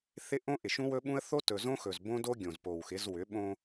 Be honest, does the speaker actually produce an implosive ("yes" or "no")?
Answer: yes